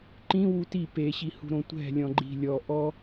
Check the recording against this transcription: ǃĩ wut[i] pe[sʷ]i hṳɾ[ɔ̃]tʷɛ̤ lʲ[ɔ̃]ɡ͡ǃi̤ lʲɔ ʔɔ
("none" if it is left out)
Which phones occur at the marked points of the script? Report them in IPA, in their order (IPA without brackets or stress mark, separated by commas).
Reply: i, ɕ, õ, ɔ̃